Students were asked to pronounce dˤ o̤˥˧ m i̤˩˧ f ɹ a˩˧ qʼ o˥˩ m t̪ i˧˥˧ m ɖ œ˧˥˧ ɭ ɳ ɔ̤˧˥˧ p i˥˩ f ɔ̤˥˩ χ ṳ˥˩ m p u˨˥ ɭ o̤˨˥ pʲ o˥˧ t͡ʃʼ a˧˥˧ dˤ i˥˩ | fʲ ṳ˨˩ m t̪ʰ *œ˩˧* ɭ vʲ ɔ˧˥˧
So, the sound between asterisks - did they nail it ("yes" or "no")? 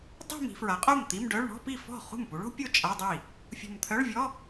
no